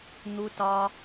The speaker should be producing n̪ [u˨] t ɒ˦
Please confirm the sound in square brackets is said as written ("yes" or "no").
no